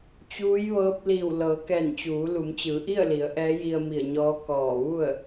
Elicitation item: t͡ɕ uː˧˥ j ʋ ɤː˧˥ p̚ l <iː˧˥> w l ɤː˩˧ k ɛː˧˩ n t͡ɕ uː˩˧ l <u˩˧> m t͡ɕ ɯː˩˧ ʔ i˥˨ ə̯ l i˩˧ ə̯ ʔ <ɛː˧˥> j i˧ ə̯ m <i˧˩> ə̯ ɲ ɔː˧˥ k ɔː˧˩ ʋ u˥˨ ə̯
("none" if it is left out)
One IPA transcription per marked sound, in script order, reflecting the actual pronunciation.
iː˧˩, u˩˧, ɛː˧˥, i˧˩

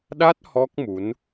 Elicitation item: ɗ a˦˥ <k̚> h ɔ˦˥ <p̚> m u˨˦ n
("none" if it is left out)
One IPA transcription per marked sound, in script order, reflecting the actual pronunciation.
t̚, k̚

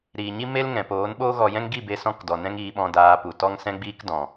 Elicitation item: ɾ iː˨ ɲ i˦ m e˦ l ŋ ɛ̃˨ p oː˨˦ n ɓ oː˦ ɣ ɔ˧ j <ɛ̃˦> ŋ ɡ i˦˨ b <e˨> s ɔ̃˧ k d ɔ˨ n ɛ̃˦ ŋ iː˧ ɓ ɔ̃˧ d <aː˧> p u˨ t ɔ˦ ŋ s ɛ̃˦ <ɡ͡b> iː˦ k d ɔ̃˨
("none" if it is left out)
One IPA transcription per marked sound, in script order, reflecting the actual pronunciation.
ɛ̃˦, e˧, aː˧, ɡ͡b

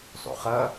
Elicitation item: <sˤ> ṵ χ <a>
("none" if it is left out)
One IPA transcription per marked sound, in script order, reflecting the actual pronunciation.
sˤ, ʌ

